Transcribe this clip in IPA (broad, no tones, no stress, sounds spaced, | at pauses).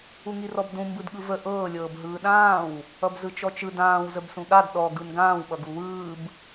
u ŋ i r ɔ b d ũ m b ɯ d ɠ ɯ v ə ʔ ɤː lʲ ɤː b ɦ ɯː ɗ ãː w | ʌ b z ɯ t͡ʃ ɔ t͡ʃ ɯ d ãː w z ə b s ũ ɠ a d ɗ ɔ ɡ ɯ n ɡ ãː w ɓ ʌ ɡ u w ɯː b